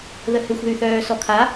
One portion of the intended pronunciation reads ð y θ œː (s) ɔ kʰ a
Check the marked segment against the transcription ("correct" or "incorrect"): correct